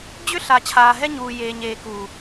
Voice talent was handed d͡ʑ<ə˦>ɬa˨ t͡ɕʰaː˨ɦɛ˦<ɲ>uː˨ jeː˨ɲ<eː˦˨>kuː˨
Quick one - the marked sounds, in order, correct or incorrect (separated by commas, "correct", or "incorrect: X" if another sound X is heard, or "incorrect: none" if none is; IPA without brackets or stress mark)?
incorrect: ʏ˦, correct, incorrect: eː˨